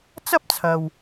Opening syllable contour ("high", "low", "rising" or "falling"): high